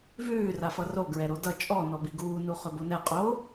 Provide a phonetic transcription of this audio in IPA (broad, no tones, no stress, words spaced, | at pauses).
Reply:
vʉː rafʌro ɡɹɛɾodʌ t͡ʃʼɔ nɔbiɡuː nuχɵbonɛ qʼo